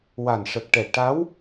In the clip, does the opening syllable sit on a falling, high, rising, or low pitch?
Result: low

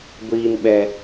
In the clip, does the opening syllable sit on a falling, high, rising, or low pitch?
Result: low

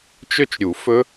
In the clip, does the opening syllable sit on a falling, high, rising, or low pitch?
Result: falling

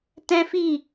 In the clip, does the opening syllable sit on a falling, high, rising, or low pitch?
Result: high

